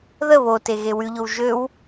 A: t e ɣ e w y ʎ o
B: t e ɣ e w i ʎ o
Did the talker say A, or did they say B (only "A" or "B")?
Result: A